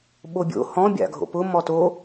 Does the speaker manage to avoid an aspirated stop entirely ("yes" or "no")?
yes